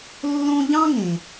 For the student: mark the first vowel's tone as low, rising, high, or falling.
high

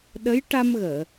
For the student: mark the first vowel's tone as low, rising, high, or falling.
rising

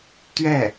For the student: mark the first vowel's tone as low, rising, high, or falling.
falling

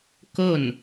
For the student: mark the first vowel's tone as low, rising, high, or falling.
falling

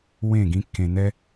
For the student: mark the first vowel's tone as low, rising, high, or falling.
falling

